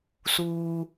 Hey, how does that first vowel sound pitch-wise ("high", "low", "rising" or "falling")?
low